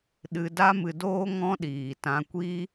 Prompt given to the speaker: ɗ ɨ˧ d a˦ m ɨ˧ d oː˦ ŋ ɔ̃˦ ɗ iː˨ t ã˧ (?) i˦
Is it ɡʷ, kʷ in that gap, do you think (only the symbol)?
kʷ